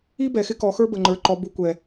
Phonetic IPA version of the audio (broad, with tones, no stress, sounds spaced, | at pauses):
i˥ b ɛ˨˩ x ɪ˥ k ɔ˨˥ x ə˞˥ b ə˨˩ ŋ͡ǃ ə˞˨˩ ǃ ɔ˨˥ b u˨˥ kʷ ɛ˨˩